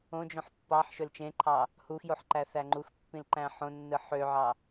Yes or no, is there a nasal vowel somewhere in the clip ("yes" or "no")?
yes